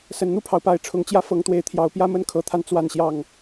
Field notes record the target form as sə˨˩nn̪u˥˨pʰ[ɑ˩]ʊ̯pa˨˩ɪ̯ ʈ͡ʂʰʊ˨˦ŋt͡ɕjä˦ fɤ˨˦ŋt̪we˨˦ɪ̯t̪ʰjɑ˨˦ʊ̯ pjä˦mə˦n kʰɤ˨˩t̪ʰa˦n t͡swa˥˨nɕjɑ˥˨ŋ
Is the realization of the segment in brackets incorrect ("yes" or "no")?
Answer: no